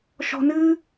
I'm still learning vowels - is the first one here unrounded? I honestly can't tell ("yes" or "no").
no